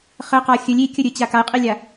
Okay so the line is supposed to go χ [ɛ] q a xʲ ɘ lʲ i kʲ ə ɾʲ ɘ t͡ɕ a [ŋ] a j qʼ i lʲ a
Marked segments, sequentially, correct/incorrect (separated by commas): incorrect, incorrect